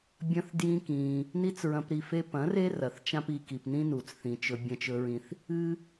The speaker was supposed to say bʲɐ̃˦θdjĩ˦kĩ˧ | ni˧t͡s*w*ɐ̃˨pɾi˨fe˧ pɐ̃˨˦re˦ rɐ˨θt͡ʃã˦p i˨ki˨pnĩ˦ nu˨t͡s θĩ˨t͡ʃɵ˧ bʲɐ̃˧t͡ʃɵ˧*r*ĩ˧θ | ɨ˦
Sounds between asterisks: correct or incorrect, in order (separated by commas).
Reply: incorrect, incorrect